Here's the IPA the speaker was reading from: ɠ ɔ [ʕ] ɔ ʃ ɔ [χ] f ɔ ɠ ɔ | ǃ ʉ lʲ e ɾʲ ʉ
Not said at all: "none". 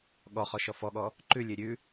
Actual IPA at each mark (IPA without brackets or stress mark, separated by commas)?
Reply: χ, none